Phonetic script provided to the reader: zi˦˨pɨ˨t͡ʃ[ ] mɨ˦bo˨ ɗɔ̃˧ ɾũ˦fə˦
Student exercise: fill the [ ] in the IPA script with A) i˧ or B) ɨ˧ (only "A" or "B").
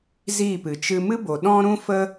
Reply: B